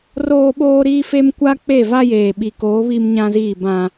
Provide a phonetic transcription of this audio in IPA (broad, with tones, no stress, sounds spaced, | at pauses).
r oː˦ ɓ oː˦ ɾ iː˦ f e˦ m kʷ a˦ k͡p e˦˨ v a˦ j eː˨ ɓ i˨ k oː˨˦ β i˦ m ɲ ã˦ z iː˦˨ b ã˦